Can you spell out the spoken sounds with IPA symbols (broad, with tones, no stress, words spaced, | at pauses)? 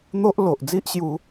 n̪o˦ʔ lo˨ʔd͡zi˦ʔɕju˧